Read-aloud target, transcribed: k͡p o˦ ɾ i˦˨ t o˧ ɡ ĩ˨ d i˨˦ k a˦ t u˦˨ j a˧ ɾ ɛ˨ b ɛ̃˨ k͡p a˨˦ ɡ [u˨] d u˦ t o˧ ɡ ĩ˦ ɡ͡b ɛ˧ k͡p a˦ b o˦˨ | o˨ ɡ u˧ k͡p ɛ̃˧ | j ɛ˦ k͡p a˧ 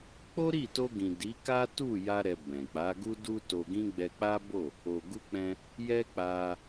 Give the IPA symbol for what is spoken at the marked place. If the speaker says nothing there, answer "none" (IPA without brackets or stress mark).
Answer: u˦